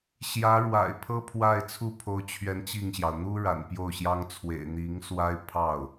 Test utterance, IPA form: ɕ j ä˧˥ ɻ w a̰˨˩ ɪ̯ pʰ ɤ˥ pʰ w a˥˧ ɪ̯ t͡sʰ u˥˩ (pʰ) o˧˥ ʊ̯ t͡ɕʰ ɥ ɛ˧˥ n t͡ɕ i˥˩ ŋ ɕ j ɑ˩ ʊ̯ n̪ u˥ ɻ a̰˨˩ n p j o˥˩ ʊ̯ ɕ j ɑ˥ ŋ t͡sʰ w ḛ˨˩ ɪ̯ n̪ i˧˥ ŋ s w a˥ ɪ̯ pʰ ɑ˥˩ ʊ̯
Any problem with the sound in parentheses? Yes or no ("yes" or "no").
no